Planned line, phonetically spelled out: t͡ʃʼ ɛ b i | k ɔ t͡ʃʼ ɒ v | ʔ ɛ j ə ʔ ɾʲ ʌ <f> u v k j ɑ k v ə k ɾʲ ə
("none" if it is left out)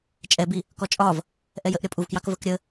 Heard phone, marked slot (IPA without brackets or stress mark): pʼ